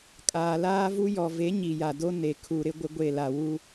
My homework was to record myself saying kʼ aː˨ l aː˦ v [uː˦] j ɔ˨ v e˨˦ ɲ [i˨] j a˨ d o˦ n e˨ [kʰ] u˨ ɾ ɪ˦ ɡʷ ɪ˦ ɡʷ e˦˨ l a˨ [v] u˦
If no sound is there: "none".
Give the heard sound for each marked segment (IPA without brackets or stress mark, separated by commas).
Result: u˦, i˨, kʰ, w